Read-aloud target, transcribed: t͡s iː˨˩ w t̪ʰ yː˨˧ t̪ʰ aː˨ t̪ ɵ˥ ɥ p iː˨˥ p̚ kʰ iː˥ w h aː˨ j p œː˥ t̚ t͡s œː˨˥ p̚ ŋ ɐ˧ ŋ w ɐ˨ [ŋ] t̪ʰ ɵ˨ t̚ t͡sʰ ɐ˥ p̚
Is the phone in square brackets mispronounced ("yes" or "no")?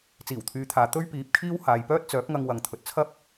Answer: no